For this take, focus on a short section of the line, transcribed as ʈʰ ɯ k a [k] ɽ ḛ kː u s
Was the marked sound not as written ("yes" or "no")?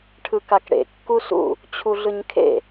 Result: no